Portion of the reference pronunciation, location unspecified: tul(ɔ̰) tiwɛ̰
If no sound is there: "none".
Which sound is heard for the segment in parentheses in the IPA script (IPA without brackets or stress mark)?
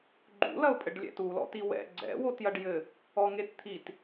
ɔ̰